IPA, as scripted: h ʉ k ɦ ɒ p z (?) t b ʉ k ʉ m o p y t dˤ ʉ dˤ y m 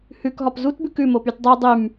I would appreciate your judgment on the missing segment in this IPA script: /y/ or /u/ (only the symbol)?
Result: u